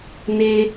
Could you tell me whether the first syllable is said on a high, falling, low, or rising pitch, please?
high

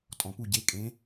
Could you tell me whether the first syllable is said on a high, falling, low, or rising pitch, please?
low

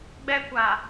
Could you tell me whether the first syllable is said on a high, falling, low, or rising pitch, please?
high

